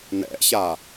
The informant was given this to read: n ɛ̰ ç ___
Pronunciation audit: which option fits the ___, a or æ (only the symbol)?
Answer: a